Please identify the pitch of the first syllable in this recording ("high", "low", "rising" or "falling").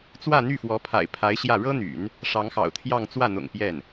falling